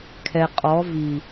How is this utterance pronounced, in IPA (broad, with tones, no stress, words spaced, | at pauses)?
kʰɛ˨qʼɔ˨˦ vi˨